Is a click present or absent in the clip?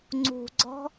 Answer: present